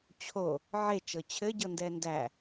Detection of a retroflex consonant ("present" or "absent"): absent